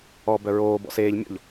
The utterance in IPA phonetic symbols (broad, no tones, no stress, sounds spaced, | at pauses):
ɔ b œ ɹ oː b ɔ̰ s eː ʎ mʲ ɔ̰ ʎ